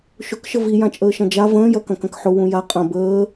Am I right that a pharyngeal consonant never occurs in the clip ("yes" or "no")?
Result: no